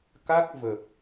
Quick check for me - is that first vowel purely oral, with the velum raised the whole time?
yes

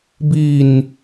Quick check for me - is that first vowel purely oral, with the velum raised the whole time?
yes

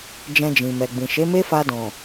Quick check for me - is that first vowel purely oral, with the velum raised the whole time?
no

